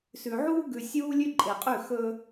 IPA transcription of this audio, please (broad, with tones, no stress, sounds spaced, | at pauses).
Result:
s ʉ˨ ʕ uː˦ ɡ ʉ˨ sʲ uː˦ lʲ ʉ˦ ǃʼ e˨ qʼ ʉ˦˨ x ɵ˦